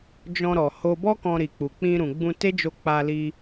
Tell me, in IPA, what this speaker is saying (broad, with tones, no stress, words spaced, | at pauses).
d͡ʒɔ̃˧ɾɔ˨ ho˧bɔ˦ kɔ̃˧ɾi˨k͡pu˨ k͡pĩ˧ɾũ˨ ɡ͡bũ˧te˦d͡ʒo˧ k͡pa˧li˧